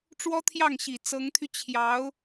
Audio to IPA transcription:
ʈ͡ʂ w ɔ˥ t̪ʰ j ɑ˥˩ ŋ ɕ i˨˩ t͡s ɤ˧˥ ŋ t̪ʰ y˧ t͡ɕʰ j ɑ˧˥ ʊ̯

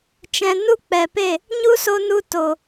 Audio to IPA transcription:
t͡ʃ ɛ̃˨ n u˦ k͡p ɛ˨ p e˦˨ | ɲ u˦ s o˧ n u˧ t o˨

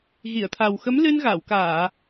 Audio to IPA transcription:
ɣ i˨˩˨ ə̯ t̪ʰ a˨˩ w x ə˧˥ m l ɨ˧ n ɣ a˨˩˨ w k aː˨˩˨

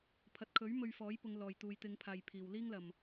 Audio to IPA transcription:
pʰ ɐ˨ t̚ kʰ ɵ˨˥ ɥ m ɵ˧ ɥ f ɔː˨˥ j p ʊ˨˧ ŋ l ɔː˨˩ j t̪ uː˨ j t̪ ɪ˨˧ ŋ pʰ aː˨ j pʰ iː˨˩ w l iː˥ ŋ l ɐ˨˩ m

